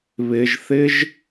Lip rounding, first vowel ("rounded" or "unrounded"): unrounded